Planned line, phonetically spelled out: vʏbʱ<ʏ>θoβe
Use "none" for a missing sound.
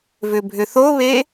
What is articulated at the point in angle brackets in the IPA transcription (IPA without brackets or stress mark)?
ʏ